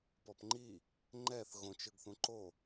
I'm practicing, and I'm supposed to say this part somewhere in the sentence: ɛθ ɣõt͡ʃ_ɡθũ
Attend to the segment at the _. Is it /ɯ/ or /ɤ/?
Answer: ɯ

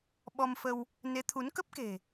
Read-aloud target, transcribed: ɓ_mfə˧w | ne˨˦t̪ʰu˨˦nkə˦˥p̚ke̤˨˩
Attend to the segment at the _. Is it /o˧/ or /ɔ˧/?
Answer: ɔ˧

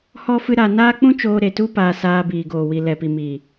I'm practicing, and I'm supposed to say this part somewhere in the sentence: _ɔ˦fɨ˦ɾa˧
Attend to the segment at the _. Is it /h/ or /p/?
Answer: h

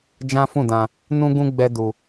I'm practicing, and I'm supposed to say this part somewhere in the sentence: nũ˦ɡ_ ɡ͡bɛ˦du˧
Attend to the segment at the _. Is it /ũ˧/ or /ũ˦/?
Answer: ũ˦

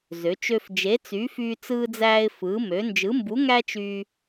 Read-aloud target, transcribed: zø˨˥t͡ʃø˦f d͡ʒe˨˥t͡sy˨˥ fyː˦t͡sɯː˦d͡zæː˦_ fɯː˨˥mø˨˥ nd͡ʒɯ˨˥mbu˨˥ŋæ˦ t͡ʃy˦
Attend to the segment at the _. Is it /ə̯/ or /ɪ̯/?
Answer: ɪ̯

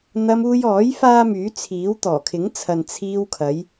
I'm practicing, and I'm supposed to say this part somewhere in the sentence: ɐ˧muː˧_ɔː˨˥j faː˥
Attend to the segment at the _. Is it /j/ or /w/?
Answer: j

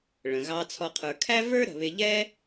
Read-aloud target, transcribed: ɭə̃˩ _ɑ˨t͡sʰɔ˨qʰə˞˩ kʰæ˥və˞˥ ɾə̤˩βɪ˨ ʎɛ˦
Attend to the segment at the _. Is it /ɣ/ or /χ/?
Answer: ɣ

